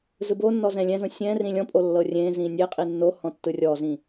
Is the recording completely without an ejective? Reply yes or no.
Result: no